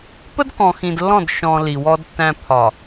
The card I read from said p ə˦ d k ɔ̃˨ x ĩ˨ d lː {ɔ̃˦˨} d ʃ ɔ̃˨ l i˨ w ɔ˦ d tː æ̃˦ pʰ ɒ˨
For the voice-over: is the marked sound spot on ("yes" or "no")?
yes